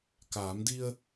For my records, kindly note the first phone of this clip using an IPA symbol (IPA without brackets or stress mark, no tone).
k